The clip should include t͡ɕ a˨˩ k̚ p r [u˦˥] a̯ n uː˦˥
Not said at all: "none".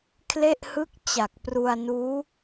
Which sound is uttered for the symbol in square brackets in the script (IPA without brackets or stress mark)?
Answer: u˧